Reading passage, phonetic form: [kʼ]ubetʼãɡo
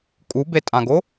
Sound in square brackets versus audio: correct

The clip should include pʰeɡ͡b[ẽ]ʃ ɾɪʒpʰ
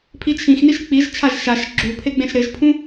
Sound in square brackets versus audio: correct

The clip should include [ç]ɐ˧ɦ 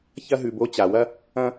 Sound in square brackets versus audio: correct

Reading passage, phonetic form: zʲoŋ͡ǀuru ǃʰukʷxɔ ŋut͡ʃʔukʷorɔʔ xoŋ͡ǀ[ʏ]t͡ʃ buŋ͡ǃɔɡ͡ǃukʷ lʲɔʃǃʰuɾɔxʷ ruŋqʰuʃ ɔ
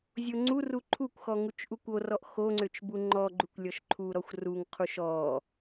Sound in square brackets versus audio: correct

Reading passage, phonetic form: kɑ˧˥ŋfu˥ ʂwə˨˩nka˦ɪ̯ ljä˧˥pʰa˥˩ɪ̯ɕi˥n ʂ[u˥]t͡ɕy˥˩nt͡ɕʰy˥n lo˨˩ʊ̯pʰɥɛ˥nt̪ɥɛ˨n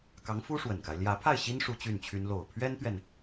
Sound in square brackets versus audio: correct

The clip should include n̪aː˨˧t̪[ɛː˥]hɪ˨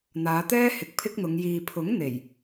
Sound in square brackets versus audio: correct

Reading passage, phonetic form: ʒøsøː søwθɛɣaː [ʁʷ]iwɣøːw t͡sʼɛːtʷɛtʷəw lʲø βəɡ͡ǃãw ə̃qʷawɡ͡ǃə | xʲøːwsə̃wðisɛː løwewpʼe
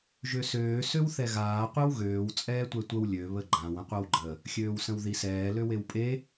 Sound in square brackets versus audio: incorrect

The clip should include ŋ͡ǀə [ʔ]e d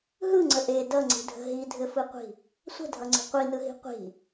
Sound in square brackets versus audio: correct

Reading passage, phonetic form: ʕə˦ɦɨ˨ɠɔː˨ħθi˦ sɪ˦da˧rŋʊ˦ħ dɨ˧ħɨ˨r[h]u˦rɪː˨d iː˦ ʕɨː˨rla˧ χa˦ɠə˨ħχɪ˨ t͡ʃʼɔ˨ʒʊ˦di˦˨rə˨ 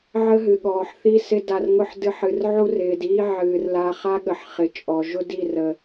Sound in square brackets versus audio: incorrect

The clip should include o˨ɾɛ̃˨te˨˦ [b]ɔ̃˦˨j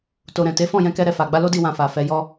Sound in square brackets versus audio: incorrect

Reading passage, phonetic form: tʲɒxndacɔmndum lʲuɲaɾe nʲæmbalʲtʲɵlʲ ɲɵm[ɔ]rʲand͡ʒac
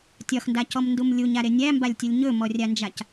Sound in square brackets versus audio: correct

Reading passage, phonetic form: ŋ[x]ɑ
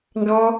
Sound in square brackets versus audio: incorrect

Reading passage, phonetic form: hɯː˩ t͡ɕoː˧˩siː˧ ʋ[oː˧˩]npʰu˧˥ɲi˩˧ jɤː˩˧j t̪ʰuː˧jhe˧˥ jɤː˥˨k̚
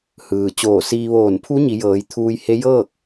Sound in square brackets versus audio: correct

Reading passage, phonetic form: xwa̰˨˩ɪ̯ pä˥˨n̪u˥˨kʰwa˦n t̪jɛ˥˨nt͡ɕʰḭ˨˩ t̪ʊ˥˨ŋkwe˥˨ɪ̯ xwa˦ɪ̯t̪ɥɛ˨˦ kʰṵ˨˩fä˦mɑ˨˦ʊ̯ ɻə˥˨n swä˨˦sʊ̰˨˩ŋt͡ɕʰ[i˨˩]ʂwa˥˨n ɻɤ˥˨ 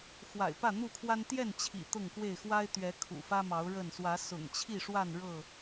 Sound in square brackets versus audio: incorrect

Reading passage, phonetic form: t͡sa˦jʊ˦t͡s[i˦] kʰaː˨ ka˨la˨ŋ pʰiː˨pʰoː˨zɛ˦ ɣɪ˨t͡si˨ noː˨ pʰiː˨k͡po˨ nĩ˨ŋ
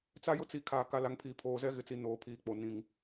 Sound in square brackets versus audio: incorrect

